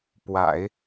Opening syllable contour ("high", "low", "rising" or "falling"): low